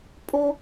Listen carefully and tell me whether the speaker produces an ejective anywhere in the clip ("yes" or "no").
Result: yes